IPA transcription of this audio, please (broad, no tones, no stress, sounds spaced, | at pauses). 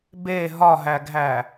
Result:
b e ɦ ɒ ɦ æ ɡʱ æ